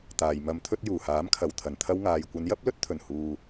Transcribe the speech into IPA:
t̪ aː˨ j m ɐ˧ m t̪ʰ ɵ˥ t̚ j uː˨˩ h aː˨˥ m kʰ ɐ˨ w t̪ʰ ɐ˨˩ n t̪ʰ ɐ˧ w ŋ aː˨ j kʷ ɐ˨˧ n j ɐ˥ p̚ l ɵ˥ t̚ t̪ʰ ɵ˨˩ n h uː˨

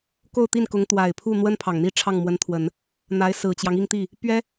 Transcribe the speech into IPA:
k o˥˧ ʊ̯ t̪ i˥˩ n k ʊ˧˥ ŋ t̪ w a˨˩ ɪ̯ pʰ u˥˩ n̪ w ə˥ n pʰ ɑ˨˩ ŋ n̪ i˥˧ ʈ͡ʂʰ ɑ˥˩ ŋ m w ə˧˥ n t̪ʰ w ə˨˩˦ n | n̪ a˧˥ ɪ̯ s ɹ̩˨˩ t͡ɕ j ɑ˦ ŋ i˥˧ ŋ t̪ i˥˩ | p ɥ ɛ˥

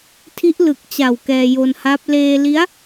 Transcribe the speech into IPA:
tʰ i˦˥ ʔ l ɯ˨˩ k̚ t͡ɕ a˨˩ w k ɛː˧ j o˧ n h a˦˥ p̚ l eː˧ l i˦˥ a̯

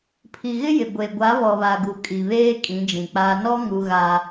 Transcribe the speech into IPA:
pʰ i˨ ɣ ɪ˦ j ɪ˨ ɡʷ e˨ ɡʷ a˨˦ β ɔ˨ β a˨ ɡ u˨ kʼ i˨ β eː˦ kʼ ĩ˨˦ d͡ʒ ĩ˨ k͡p aː˦ n ɔ˦ ŋ u˦ ɣ a˦

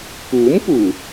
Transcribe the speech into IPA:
k uː˨˥ m p uː˨˩

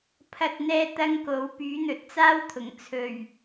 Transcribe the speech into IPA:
pʰ ɐ˧ t̚ n̪ ɛː˧ t̪ ɐ˥ ŋ k o˨˥ w p yː˨˥ n̪ ɵ˨ t̚ t͡s aː˥ w t̪ʰ ʊ˨˩ ŋ t͡sʰ ɵ˨˩ ɥ

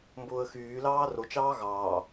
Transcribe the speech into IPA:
m b ʊː ə̯ x yː l ɑː r o t͡ʃ ɑː ɣ ɑː

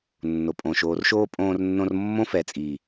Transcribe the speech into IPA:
nː o˨ pʼ õː˨ ʃ oː˨ r ʃ oː˧ pʼ õː˧ r nː õ˧ r mː õ˦ f ɛ˨ t͡sʼ iː˨

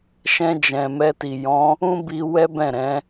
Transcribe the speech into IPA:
ʃ ɛ̃˧ d͡ʒ ɛ̃˨ m ɛ˧ t i˨ j ɔ̃˨˦ | ũ˦ b i˧ w ɛ˦ b ɛ̃˦˨ ɾ ɛ̃˨˦

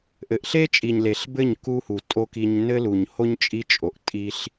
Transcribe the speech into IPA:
ʔ ɘ˨ ʔ ɬ e˦ t͡ʃʼ i˨ ɲ l e˨ ɬ b ɘ˦˨ ɲ k u˧ h u˨ tʼ o˦ k i˧ ɲ n ɘ˦ l u˨ ɲ h o˦ ɲ t͡ʃʼ i˦ t͡ʃʼ o˨ ʔ tʼ i˦ ɬ

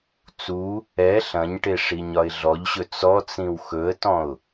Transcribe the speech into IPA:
t͡s u | ɛ ɬ ɐ̃ ɲ ʈ e ʂ i ɲ ɒ ɪ̯ ɮ ɔ ʎ ɕ ɵ t͡s ɔ t͡s ĩ w x ɵ ə̯ t ɔ̃ ʊ̯

